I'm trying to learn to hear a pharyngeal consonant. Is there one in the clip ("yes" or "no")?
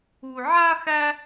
yes